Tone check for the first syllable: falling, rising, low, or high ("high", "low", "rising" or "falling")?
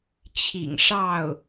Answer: low